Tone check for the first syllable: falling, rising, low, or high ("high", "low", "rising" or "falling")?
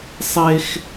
high